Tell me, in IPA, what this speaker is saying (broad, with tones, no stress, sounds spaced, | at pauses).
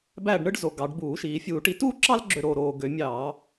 b æ˦˨ ɖ ɳ ɯ˥ ɖ z o˩˧ ɡ ɑ˩˧ ɖ b uː˧˩˧ ʃ iː˩˧ fʲ uː˧˩˧ ʈ i˩˥ t uː˥ ǁ ɑ˥ l ɡ͡ǁ ø˦˨ ɾ oː˦˨ ɾ oː˦˨ ɡ ø˧˩˧ mʲ ɑː˧˩˧